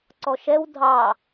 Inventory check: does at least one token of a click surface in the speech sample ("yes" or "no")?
yes